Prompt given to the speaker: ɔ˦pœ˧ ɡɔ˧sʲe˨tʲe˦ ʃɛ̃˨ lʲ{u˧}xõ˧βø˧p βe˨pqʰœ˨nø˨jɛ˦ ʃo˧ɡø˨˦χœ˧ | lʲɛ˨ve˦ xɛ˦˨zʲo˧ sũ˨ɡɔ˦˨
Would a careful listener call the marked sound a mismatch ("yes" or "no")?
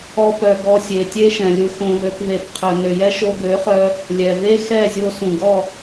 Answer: no